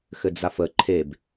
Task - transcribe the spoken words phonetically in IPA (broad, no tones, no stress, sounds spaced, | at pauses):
x ɘ d͡z a f ə ǃʰ e b